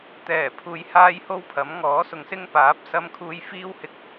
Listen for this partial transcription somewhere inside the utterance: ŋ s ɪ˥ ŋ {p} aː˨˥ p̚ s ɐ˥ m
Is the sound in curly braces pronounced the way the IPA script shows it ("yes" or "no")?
yes